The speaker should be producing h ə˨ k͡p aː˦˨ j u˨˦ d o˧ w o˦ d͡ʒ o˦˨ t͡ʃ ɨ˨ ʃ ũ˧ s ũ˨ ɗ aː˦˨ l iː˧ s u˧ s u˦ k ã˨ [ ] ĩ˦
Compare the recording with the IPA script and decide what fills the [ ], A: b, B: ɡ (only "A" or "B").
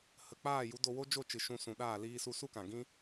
B